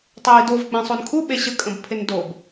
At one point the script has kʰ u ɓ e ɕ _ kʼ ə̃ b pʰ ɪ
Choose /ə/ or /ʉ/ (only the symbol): ə